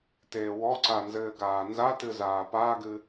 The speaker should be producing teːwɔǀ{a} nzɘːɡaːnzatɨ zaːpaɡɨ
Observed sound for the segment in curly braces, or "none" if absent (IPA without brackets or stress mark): a